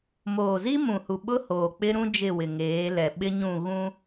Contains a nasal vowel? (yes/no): yes